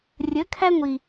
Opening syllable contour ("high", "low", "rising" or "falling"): rising